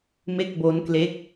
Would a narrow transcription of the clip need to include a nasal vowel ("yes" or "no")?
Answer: no